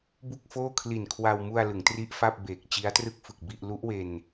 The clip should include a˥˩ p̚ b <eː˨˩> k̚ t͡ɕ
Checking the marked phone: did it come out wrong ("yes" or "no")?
no